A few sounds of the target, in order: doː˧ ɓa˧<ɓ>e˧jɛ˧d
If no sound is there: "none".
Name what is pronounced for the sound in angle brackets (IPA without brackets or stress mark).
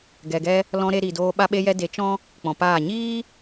ɓ